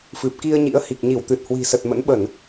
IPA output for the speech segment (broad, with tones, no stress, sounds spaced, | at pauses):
f ɨ˨˩ p̚ k i˧ ə̯ ɲ ḭ˧˥ ə̯ h i˨˩ k̚ ɲ i˧˩ w t̪ ɨ˨˩ t̚ h w i̤˨˩ s ə˨˩ t̚ m ə̰˧˥ n ɓ ə˧˩˨ n